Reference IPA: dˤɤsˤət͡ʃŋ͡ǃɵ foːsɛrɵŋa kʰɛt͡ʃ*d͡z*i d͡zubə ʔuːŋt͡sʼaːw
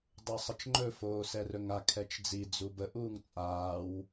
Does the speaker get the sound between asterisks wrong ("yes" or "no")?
no